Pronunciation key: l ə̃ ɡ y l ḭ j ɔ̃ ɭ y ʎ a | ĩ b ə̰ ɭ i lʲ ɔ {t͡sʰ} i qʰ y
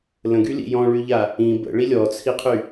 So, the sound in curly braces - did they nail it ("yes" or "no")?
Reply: yes